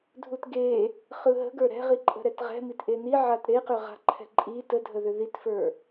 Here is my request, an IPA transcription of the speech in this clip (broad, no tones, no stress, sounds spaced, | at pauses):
dʱ u t ɡ e | χ ɯ ɦ ə̤ ɡ ə˞ ɾ ɛ̤ ʁ i ǃʼ ə̤ ɾ ɛ t ʁ ɛ̤ m i t ʔ e n i ʕ a t ɾ e q ʏ ʁ a̤ ǃʰ ɛ̤ ǃʼ i t ə dʱ ə ð ʏ ð i t f ə˞